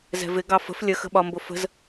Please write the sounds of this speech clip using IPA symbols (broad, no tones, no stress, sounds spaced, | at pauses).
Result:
z ɛ̤ v ɪ ɡ ɑ f ə̤ f lʲ ə x ə̤ ɓ ɒ m b ʊ f ə̤ z